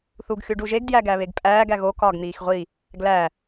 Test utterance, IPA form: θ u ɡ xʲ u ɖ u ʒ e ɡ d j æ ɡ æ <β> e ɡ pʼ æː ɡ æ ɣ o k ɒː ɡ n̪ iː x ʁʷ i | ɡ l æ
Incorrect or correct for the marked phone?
correct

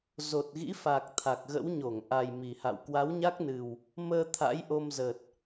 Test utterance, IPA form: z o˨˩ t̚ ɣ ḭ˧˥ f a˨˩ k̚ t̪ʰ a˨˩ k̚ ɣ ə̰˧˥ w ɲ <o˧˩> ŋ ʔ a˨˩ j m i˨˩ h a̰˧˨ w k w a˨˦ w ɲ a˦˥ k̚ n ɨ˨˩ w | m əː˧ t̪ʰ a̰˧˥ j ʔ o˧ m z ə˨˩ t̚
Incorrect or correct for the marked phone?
correct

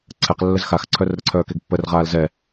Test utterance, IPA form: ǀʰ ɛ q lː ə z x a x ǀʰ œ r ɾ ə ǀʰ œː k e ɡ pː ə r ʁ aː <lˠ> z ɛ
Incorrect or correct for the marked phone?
incorrect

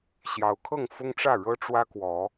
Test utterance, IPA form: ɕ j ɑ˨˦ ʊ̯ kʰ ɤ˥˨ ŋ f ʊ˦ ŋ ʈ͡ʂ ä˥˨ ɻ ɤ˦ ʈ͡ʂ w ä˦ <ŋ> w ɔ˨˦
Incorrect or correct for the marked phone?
incorrect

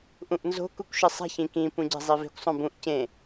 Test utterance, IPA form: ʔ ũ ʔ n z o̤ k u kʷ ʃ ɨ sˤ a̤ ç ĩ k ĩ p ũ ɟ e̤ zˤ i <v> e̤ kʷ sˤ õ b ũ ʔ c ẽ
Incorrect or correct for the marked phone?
correct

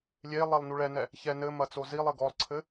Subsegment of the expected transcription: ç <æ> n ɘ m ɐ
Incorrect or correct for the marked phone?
incorrect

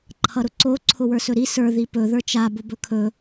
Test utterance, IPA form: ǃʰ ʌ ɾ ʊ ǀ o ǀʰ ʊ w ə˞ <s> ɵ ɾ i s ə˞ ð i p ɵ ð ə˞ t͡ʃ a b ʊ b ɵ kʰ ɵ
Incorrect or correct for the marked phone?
correct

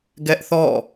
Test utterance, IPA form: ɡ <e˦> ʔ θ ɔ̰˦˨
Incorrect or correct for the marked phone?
incorrect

